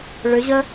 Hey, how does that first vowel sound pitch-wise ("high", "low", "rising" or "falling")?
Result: rising